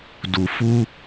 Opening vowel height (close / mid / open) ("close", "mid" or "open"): close